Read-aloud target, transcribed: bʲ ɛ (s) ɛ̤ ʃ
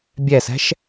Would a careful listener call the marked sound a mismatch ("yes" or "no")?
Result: no